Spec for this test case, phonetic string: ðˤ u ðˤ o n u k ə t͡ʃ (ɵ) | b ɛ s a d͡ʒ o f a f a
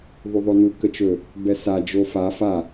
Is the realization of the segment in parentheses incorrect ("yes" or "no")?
no